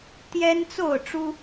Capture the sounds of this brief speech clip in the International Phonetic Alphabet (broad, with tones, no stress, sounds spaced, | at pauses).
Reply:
t̪ j ɛ˦ n t͡s o˥˨ ʊ̯ ʈ͡ʂ u˦